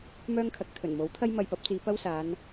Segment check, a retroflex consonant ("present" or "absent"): absent